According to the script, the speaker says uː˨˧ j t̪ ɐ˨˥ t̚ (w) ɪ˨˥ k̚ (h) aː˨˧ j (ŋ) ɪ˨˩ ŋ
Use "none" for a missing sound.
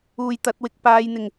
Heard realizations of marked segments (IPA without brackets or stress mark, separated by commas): w, p, n̪